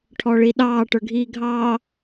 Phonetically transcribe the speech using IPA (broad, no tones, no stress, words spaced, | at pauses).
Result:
ʈʰɔɭiɗɑː ʈə˞ɡʱiːɡʱɑ